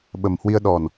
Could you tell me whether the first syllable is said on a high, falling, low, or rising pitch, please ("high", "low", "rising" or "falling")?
low